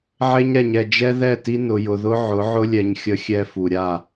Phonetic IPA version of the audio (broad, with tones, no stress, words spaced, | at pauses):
ʕe˦ɲɾɛ˨ɲɛ˨ d͡ʒɛ˦ðɛ˦˨ti˦ nʊ˨jʊ˨ðʊ˦ ʕʊ˨˦ʕʊ˦lʲɛ˨ɲ xʲə˦xʲɛ˦fu˨ ɾʲa˦˨